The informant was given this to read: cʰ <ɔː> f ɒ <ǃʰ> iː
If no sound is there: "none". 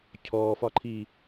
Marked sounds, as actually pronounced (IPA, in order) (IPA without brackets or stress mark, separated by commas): ɔː, ǃʰ